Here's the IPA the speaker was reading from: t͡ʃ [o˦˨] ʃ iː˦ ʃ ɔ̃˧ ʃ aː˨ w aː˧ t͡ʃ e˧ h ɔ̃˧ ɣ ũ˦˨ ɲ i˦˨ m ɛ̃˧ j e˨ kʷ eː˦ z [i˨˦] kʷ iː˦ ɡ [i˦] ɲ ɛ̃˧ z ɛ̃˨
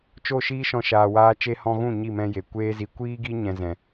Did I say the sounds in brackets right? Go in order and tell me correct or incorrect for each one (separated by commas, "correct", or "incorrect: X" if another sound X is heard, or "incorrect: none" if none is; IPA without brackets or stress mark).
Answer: correct, incorrect: i˧, correct